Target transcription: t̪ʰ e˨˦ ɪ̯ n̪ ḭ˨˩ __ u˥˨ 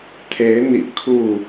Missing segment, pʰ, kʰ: kʰ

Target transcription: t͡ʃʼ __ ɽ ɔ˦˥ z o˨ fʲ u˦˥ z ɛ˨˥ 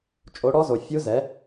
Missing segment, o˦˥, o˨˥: o˨˥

